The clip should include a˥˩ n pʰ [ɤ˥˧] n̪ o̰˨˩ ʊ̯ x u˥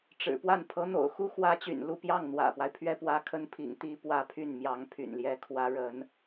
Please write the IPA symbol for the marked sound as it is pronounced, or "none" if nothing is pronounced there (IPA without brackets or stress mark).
ɤ˧˥